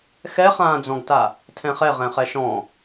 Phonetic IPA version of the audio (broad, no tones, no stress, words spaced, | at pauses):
xɛχãːd͡zɔ̃ɡta | tʰɛ̃χɛ ʁɛ̃χɛʃɔ̃